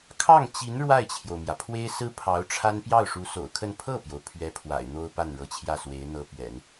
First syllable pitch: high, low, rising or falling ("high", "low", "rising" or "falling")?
falling